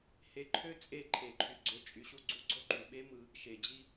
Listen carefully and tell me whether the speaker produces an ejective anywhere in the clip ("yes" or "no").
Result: yes